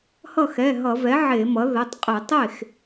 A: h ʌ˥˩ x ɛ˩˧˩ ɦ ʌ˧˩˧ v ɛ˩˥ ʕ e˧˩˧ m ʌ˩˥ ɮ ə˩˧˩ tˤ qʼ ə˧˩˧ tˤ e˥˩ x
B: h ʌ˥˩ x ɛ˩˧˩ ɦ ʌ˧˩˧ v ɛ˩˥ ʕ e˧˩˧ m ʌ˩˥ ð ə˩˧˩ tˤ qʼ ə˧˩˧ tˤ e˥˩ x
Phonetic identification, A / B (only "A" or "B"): B